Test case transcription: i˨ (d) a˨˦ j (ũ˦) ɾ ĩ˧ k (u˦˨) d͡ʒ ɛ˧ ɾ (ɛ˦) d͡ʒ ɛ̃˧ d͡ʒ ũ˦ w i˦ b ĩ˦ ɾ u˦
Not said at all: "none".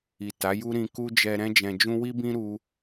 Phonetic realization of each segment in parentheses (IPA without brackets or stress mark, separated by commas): t, u˦, u˦, ɛ̃˦